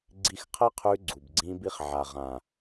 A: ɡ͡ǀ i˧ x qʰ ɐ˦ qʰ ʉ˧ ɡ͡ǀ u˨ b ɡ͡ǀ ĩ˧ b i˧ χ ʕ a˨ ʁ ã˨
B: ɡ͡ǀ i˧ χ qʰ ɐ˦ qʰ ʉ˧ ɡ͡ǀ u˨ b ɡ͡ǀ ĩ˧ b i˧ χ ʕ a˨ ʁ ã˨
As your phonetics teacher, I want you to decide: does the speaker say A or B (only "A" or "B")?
A